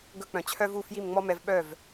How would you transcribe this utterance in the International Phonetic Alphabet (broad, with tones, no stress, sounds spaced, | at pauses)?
ɡ ɵ˧ k͡p œ̃˩ t͡ɕʰ œ˥ v u˥˩ f j i˥˩ m ŋ͡m ɔ˥ m ɛ˧ v ɓ œ˥˩ v